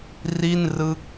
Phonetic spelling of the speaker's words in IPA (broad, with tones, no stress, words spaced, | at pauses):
ri˥˩n rɯ˥˩k̚